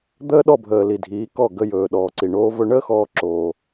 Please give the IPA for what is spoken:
d̪ əː˦ ɗ ɔ˦˨ bʱ əː˨ l i˨ dʱ iː˨˦ k ɔ˦˨ ɡ ə˧ j ɵː˨ ɗ ɔː˨ ǀ i˨ ɳ oː˧ v ɵ˧ ɳ əː˦ x ɔː˦ ǁ oː˧

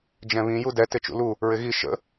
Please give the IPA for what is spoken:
d͡ʒ ɛ̃ β ĩ j u d ɛ t ɪ t͡ʃ ṵ l u | ɹ ɪ ɣ i ʃ ə̰

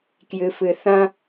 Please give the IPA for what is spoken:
k j ɨ f ɨ θ ɐ̃

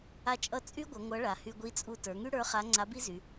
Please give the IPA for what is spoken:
a˥ t͡ʃʼ ʌ˥ t͡sʼ y˥ ɡʷ ʌ˩˧ ŋʷ ʌ˧˥ ɭ a˩˧ h y˧ ɡʷ i˧˥ t͡sʼ u˧ t ə˞˩˧ ŋ y˥ ɽ ə˞˧˥ χ a˧˥ ŋ͡ǀ a˧˥ b i˥ z y˩˧

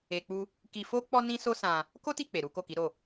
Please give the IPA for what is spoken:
e˧ k͡p u˦ | k i˧ f o˦ k͡p ɔ˦ n ĩ˦ s o˦ s ã˧ | k o˦ t i˦˨ k͡p e˨ ɾ u˨˦ k o˦˨ k i˨˦ ɾ o˦˨

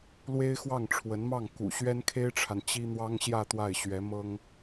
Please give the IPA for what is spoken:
l w e˥ ɪ̯ x w ɑ˥˩ ŋ ʈ͡ʂʰ w ə˧˥ n m ɑ˥˩ ŋ k ṵ˨˩ ɕ ɥ ɛ˥ n kʰ e˥ ɪ̯ ʈ͡ʂʰ a˨ n t͡ɕ i˥ n̪ w ɑ˥ ŋ ɕ j ä˥˧ t̪ w a˥˩ ɪ̯ ɕ ɥ ɛ˧˥ m ɤ˥ ŋ

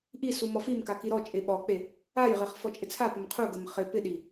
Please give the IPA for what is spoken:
ʔ i s u m ɔ f i m k a k i ɾ ɔ t͡ʃʼ e ɓ ɔ k͡p e | a j ʁ e χ f ɔ t͡ʃʼ ɪ t͡sʰ a p ə m qʰ u ɡ ə m χ ɪ p ɪ ɗ i

